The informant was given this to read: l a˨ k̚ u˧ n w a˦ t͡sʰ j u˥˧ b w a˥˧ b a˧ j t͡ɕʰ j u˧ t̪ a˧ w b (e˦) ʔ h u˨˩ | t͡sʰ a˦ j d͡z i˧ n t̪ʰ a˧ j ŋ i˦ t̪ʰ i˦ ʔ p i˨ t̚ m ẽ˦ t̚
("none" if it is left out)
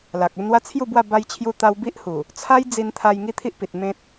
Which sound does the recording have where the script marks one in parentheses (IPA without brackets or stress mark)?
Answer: i˦